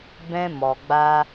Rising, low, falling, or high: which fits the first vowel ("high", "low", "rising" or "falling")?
high